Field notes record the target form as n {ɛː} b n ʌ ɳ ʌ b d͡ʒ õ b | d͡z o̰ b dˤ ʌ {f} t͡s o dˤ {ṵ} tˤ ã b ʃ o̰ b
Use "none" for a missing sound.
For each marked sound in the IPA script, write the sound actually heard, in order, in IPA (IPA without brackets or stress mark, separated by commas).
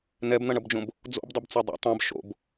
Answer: ɛ, b, ṵ